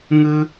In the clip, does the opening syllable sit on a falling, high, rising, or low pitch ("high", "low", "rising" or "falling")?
high